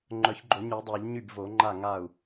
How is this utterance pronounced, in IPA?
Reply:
ŋ͡ǃ œ˨˩˦ ç ɡ͡ǃ o˨˩˦ ɲ y˨˩˦ dˤ œ˨˩˦ ʎ ɲ y˥˩ b v o˨˩˦ ŋ͡ǃ a˥˩ ŋ a˥˩ u̯

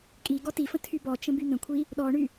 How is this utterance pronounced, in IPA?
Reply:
kʼ i ɡ ɔ t i f ə̃ tʰ y b ɔ t͡ʃ ə̃ b y n̪ ə̃ kʷʰ i | ɗ ɔ ɳ y

